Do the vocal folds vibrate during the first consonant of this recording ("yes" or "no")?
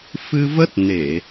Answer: no